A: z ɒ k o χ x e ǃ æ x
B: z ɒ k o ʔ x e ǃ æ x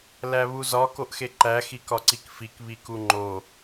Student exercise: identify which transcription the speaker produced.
B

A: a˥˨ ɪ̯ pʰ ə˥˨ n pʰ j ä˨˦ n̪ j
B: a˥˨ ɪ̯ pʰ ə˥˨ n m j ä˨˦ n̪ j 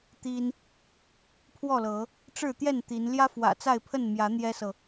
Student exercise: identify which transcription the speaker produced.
B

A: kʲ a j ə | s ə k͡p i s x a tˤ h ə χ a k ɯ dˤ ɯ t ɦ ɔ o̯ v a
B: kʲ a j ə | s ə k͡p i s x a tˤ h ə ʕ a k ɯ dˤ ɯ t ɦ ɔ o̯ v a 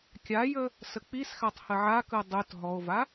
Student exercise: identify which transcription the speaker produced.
B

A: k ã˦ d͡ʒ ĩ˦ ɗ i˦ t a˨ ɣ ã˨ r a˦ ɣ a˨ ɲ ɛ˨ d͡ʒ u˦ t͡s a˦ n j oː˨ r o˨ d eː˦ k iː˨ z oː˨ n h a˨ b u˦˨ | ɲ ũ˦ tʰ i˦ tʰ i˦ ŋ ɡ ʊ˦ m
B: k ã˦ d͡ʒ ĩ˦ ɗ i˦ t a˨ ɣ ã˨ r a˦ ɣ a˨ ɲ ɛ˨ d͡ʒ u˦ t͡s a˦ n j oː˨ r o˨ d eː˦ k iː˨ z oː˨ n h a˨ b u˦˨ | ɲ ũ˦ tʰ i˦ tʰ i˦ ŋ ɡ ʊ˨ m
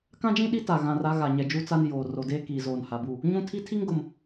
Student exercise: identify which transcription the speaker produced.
B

